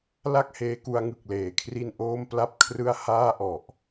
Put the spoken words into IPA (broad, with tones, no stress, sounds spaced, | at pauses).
l a˥˩ k̚ h eː˧ k u˧ a̯ ŋ ɯ˨˩ k̚ l eː˩˦ kʰ r i˥˩ n ʔ oː˥˩ m p l a˥˩ p̚ kʰ r ɯ˥˩ a̯ h aː˥˩ ʔ ɔ˨˩ ʔ